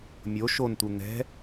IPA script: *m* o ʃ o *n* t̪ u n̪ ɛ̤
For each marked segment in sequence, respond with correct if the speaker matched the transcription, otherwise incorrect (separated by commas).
incorrect, correct